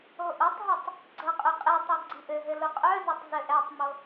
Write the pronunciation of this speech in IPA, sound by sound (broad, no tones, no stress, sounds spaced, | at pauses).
o ʔ o tˤ ɦ i tˤ | ɡ͡ǀ ʌ qʼ œ qʼ ɛ tˤ i ɡ͡ǀ i ʔ ɘ ɦ ɘ l ʊ qʼ œ z ʊ tˤ z ɘ ʔ ɛ tˤ m o